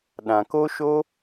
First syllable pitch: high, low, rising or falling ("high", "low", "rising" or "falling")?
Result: low